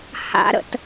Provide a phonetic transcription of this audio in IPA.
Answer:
h a̰ ɾ ə̰ t

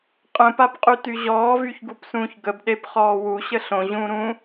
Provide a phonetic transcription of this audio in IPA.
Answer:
qʼ ə̃ p a p qʼ y t y ʑ ɔː v y ç ɡ u p s ũː ç ɡ ə b ɗ e p χ ɔː w u ɕ ə ɬ õ ʑ ũː ɾ ũː

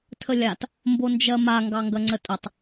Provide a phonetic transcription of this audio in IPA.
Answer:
tʰ ə lʲ a t | m b o n d͡ʒ ɜ m a ŋ ɡ ɑ ŋ ɡ ɐ ŋ͡ǀ ə tʼ ə tˤ

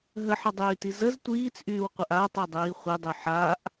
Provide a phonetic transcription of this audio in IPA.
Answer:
ɦ ə ħ ə dˤ yː t i z ə z tʷ iː t͡s ʔ yː w qʷ ə ʔ a tˤ e dˤ iː χʷ e dˤ y ħ a ʔ

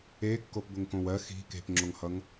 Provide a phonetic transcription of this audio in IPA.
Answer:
e kː o p b ʊ ŋ k õ w ɜ x i̤ k e̤ p ŋ͡ǁ o ŋ h ʌ ŋ

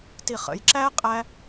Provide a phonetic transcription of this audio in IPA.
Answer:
t i χ ə̰ j ǁ æ qʼ æ

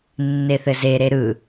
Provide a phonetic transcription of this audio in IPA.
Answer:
nː e θ ɘ z e ɾ e ɾ ɯ

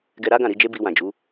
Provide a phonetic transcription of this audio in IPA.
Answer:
ɡ ɛ˧ ɾ a˦ ɡ ã˦˨ ɾ i˨˦ d͡ʒ e˦ b i˧ w ã˨ d͡ʒ u˨˦

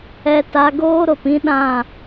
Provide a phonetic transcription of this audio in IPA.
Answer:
ɛ˧ t a˧ ɡ oː˦ ɾ o˨ p ĩ˦ ɗ ã˦˨

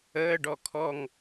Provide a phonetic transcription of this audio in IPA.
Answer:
əː ɖ ɔ kʰ ɔ ŋ

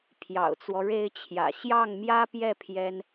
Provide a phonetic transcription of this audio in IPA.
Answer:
pʰ j ɑ̰˨˩ ʊ̯ t͡s w ɔ˦ ɻ e˥ ɪ̯ t͡ɕʰ j ä̰˨˩ ɕ j ɑ˥˩ ŋ m j ä˥ p j ɛ˥˩ pʰ j ɛ˥ n

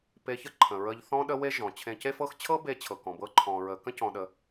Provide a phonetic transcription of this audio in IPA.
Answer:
p e˧ ç ə˦ ǃʰ ə̃˨ ɹ ə˧ ʎ θ ɔ̃˦ ɗ ə˦ w e˦ ʒ ɔ̃˨ t͡ɕʰ ẽ˧ c e˦ f ɤ˦ x t͡ɕʰ ɤ˦ b e˧ t͡ɕʰ ɤ˨ k ɔ̃˨ b ɤ˧ ǃʰ ɔ̃˨ ɹ ə˨ k ə̃˦ c ɔ̃˧ ɗ ə˧

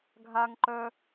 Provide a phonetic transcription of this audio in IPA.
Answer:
ɡʱ a ŋ ǃ œ

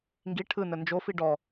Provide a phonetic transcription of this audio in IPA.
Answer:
ŋ ɡ i ʈʰ ɯ n ə n d͡ʒ o f i ɖ ɔ

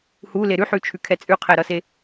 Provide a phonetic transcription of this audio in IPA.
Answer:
h u l e ɾ ʉ ħ ʉ t͡ʃʰ ʉ kʰ ɛ t͡sʼ ʉ qʰ ɛ ɾ ʌ s e

